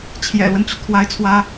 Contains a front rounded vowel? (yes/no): yes